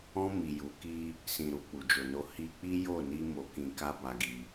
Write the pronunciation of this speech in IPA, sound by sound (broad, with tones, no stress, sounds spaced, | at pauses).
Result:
ɔ̃˧ m i˨ j u˨˦ k i˦ | s ĩ˨ ɾ u˨ k͡p u˨ d͡ʒ o˨ n o˧ h i˧ k͡p i˦ j o˦˨ n i˧ m o˨ k ĩ˨ k a˧ b a˧ ɡ i˧